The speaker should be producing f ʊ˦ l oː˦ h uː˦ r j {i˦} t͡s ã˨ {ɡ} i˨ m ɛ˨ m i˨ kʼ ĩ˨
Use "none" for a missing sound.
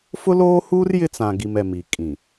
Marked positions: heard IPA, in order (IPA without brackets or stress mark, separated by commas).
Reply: ɪ˦, ɡ